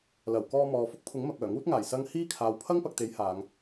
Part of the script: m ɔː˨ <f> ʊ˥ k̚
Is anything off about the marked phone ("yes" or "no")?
no